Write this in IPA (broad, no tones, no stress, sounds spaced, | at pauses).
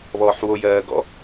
β ɔː ħ w o j ɜː ɡ ɔ̰